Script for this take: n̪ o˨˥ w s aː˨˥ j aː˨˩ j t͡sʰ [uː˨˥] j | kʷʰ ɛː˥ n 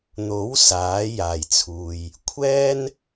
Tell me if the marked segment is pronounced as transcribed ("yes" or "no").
no